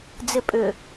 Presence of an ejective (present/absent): present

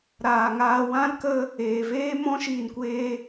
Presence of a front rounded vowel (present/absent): absent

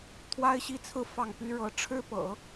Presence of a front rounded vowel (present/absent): present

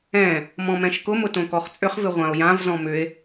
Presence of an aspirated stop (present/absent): absent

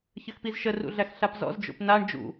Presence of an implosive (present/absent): absent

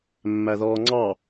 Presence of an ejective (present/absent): absent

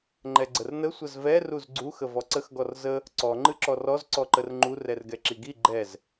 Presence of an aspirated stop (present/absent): absent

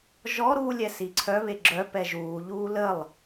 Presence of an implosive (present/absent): absent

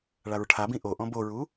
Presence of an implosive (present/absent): absent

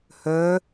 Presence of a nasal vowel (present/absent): absent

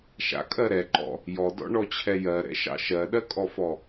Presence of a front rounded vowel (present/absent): absent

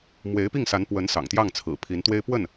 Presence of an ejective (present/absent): absent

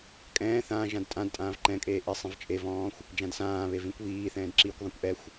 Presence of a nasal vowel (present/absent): present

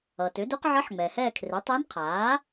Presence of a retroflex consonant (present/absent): absent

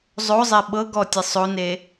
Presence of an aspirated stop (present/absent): absent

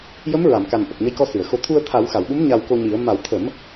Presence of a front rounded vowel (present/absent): absent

